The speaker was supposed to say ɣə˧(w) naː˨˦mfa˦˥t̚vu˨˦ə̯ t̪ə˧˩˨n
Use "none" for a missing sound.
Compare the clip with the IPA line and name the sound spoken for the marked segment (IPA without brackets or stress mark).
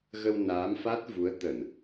w